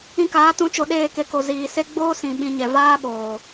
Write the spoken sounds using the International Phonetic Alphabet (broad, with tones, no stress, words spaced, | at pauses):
ĩ˧kaː˨˦tũ˨˦t͡ʃo˨ ɗeː˦˨ke˧ko˨ ziː˨se˦ ɡ͡boː˦sĩ˨ ɓĩ˧ɲɛ˨ vaː˦ɓoː˨